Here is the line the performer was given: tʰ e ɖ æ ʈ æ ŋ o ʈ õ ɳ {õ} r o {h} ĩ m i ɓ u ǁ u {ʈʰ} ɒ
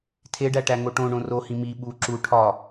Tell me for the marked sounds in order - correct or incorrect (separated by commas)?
correct, correct, correct